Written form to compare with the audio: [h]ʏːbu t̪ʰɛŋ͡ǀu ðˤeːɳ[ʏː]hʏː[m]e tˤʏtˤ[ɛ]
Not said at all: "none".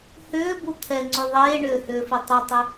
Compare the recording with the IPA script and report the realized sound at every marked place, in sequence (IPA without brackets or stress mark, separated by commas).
h, ʏː, f, ʏ